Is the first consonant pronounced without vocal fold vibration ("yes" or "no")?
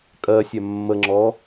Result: yes